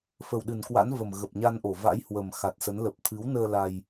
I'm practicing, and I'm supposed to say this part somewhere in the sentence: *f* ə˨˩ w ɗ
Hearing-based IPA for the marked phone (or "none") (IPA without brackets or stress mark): f